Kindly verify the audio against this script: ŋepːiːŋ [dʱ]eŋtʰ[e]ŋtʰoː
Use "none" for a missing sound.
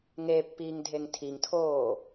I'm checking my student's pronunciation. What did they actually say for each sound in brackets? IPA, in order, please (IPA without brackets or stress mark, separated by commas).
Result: dʱ, i